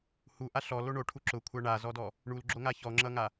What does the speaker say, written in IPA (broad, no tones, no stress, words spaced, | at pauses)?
huʔa ɬɔlo ɳoʈʰu ǁʊkʷʰa ɳazɔdɔ | ɳulɡ͡ǁoŋa çɔŋ͡ǁʌŋa